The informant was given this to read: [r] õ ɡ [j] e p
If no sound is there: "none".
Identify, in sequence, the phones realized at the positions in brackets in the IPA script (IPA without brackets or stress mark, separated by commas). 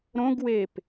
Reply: ɾ, w